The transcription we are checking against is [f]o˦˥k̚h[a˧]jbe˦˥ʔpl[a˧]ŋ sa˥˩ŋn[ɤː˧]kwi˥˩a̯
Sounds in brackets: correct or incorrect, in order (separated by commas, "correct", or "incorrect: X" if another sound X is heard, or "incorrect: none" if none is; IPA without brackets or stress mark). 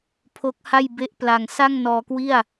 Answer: incorrect: pʰ, incorrect: a˥˩, correct, incorrect: ɔː˧